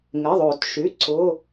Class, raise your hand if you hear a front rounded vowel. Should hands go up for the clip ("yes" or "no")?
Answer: yes